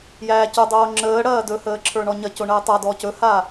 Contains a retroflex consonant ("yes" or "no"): yes